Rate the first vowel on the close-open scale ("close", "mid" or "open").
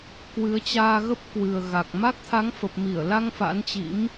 close